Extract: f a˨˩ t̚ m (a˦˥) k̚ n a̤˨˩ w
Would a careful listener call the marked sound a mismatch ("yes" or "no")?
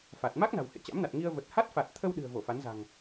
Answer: no